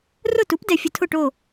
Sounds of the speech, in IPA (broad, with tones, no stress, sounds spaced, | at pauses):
r ʊ˥˩ t u˩˥ p d ɛ˩ fʲ ʊ˧ tʰ ʊ˥˩ ʈ o˥˩